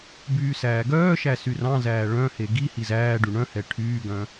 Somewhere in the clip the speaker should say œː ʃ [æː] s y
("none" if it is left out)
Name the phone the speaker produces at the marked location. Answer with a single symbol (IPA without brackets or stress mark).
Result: æ